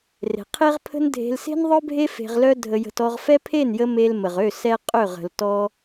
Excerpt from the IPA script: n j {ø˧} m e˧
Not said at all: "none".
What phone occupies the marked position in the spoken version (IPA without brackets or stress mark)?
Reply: ə˧